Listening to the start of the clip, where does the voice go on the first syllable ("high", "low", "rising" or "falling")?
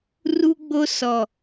high